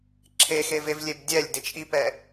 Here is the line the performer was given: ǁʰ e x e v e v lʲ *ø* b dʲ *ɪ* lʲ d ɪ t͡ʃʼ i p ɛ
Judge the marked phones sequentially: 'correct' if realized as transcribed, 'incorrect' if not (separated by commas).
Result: incorrect, incorrect